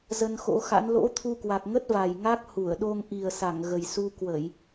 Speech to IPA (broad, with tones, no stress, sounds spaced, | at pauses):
z ə˧ n x o̰˧˥ x a̰˧˥ n l o̰˧˥ t̪ʰ u˧ k w a˨˩ k̚ ŋ ə˦˥ t̚ v a˨˩ j ŋ a˦˥ k̚ h u˧˩ ə̯ ɗ o˧ ŋ ʔ i˨˩ ə̯ s a˧˩ ŋ ɣ ə˨˩ j s u˧ k w ə˧˩˨ j